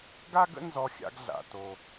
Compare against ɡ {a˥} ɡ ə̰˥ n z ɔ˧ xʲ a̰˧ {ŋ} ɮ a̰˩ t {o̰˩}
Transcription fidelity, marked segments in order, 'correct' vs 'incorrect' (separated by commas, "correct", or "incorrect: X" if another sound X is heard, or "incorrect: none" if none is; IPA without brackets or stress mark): correct, incorrect: ɡ, incorrect: o˩